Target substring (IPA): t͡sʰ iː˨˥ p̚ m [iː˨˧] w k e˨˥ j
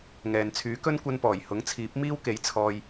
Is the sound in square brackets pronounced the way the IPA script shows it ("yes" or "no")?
no